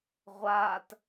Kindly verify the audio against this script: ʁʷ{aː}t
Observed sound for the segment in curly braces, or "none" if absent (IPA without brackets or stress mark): aː